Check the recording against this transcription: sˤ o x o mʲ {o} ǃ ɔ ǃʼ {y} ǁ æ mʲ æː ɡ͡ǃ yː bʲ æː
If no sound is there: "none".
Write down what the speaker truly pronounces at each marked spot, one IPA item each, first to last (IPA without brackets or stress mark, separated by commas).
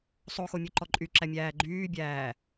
o, y